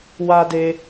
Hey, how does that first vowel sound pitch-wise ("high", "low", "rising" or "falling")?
high